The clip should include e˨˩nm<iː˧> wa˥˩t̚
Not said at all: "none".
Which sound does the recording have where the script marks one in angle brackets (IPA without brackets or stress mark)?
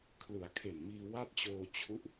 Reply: iː˧